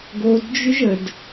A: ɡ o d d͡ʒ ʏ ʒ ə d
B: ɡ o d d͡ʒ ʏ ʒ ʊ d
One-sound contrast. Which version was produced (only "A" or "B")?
A